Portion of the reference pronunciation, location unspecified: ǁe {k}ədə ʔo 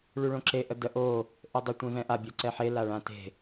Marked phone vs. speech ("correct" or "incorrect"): incorrect